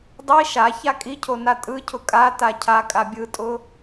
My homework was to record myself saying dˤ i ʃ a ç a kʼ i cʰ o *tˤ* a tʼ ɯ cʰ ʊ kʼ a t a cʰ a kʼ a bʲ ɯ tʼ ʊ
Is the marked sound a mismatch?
yes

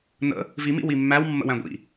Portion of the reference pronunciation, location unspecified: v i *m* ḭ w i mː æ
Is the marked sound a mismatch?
no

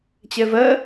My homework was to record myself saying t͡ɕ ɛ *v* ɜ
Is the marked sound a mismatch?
no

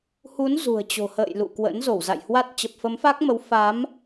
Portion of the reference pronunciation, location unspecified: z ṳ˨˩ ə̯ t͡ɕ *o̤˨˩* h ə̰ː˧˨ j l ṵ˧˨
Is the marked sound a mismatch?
no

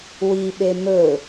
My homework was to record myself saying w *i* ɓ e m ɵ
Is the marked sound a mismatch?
no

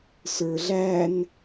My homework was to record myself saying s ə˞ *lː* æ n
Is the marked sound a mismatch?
yes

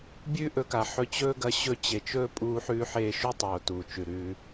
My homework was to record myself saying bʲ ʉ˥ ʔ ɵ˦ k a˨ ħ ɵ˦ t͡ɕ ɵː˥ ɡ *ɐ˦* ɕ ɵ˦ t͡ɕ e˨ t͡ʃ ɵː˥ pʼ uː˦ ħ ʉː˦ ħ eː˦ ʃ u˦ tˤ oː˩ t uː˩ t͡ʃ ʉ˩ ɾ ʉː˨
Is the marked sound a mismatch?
no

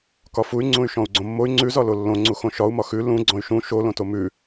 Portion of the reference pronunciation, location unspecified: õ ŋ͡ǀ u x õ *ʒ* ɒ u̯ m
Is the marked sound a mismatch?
yes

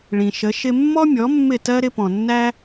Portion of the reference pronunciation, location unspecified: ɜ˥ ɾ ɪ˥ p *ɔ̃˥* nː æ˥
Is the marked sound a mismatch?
yes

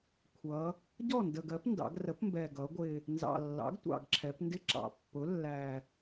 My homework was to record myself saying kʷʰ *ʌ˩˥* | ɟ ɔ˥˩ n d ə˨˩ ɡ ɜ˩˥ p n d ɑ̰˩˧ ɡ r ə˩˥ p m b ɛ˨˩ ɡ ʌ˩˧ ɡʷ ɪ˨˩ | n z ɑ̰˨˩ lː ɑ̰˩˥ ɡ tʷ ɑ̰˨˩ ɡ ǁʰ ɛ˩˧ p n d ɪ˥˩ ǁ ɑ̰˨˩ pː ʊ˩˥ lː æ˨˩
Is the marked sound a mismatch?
yes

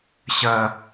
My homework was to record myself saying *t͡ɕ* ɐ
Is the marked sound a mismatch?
yes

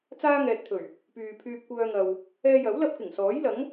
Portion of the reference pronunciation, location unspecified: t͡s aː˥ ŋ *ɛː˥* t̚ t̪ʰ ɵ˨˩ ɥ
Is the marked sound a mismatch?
yes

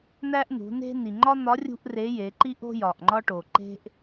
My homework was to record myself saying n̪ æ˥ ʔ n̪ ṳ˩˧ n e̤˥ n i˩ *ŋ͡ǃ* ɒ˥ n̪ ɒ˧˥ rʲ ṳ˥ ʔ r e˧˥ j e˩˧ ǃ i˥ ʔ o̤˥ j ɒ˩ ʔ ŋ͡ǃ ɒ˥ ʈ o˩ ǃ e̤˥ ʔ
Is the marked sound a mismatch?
no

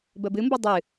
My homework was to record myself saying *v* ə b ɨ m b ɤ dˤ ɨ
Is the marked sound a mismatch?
yes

